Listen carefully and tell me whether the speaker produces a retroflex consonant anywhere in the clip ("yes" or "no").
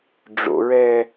yes